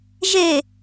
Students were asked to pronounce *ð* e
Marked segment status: incorrect: ʒ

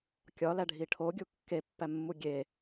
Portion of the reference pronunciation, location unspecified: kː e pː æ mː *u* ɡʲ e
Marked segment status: correct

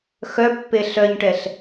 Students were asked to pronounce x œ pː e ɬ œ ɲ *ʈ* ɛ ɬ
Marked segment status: correct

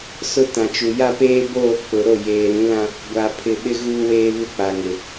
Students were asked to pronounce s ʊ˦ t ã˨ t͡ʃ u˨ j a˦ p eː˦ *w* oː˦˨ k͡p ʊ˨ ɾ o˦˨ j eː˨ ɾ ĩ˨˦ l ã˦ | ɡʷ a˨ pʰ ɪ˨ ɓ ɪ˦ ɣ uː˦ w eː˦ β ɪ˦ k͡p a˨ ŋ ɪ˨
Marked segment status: incorrect: b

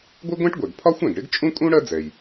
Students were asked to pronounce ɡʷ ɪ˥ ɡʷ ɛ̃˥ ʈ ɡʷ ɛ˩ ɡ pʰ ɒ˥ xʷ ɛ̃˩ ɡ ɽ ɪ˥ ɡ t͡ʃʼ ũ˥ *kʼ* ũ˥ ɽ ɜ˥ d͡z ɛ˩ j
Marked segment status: correct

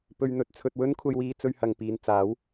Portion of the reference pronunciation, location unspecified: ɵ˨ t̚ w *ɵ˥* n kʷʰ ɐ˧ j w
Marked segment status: correct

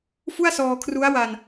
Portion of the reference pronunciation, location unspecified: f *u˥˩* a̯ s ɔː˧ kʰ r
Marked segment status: correct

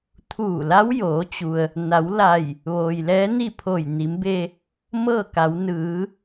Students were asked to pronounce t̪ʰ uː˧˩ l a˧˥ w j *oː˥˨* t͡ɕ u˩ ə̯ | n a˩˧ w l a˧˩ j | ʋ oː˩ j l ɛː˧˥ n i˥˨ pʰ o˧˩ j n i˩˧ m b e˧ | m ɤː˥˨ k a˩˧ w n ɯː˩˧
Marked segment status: incorrect: oː˩˧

